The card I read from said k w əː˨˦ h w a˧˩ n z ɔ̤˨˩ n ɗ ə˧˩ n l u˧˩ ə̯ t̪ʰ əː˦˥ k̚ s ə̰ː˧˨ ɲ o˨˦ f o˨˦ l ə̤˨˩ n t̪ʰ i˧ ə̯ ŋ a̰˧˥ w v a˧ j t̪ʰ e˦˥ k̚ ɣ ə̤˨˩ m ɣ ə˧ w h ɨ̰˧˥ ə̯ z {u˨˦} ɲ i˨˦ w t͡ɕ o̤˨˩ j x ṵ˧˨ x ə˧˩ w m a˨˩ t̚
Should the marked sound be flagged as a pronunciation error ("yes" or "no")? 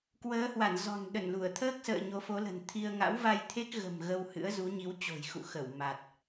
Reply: no